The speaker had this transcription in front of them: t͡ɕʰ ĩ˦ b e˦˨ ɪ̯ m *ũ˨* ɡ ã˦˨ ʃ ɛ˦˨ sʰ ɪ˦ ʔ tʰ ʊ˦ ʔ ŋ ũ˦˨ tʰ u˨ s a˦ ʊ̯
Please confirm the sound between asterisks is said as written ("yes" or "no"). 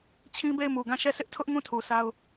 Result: no